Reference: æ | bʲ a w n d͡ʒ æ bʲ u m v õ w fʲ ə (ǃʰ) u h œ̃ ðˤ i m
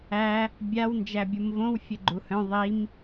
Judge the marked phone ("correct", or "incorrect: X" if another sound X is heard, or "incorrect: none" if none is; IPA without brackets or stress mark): incorrect: ɡ͡ǃ